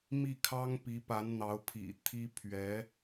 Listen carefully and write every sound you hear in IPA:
m i˥˩ kʰ ɑ˥ ŋ p i˧˥ p a˧˥ n n̪ ɑ˧˥ ʊ̯ pʰ ḭ˨˩ t̪ʰ i˥ pʰ ɥ ɛ˧˥

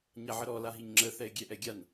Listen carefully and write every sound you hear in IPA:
ɲ a ʕ ə ɾ ɔ l a ɦ i ɲ ŋ͡ǁ ə θ ɛ ɪ̯ ɡʲ ɛ ʔ ɛ ɡʲ a n

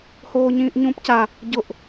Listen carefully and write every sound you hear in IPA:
h oː ɲ ĩː ʔ ɲ ũː p c a | ɟ ʊ ʔ

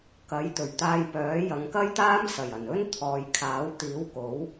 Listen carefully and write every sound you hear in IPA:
k ɐ˨˥ j t̪ ɵ˨˩ ɥ t̪ aː˧ j p œː˨˥ j ɐ˨˧ ŋ k ɐ˥ j t̪ aː˥ m s ɐ˨˩ j ɐ˨˩ n ɵ˥ n t̪ʰ ɔː˨ j kʰ aː˨˥ w t̪ iː˨˥ w k o˨˥ w

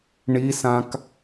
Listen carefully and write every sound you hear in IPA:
ɳ i s ã k

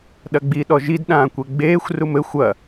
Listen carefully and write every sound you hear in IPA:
ɗ ɐ ɡ͡b i ɗ ɔ ʒ i d ɗ ãː kʷ e ɡ͡b eː xʷ r u m ɘ xʷ ɐ

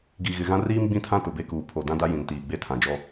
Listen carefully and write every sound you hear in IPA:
ɡ i˨ ɣ ɪ˨ ɣ ã˦ r iː˦ m ɡ͡b ĩ˦ tʰ ã˦ t ʊ˨ b e˦ k uː˨ pʰ o˨ d ã˦ d a˦ j ĩ˨ n t iː˨ ɡ͡b e˦ tʰ ã˨ d͡ʒ ɔ˦

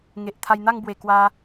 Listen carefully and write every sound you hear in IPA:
ŋ e˨ ʔ t̪ʰ a˧ j n̪ a˥˧ ŋ b w e˨˩ k w a˧

